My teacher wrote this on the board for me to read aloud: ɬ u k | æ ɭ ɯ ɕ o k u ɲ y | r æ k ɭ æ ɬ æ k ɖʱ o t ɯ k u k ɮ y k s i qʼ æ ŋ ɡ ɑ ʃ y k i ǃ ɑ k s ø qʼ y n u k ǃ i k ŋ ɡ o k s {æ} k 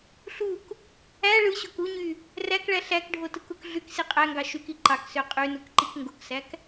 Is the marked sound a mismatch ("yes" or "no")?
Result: no